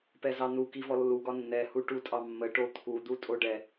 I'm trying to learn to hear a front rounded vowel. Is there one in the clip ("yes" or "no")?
no